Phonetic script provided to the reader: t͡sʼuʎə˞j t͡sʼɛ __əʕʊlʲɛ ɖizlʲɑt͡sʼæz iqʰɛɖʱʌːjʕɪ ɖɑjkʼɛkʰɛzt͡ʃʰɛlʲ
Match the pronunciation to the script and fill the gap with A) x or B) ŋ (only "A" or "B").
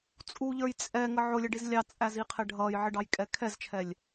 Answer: B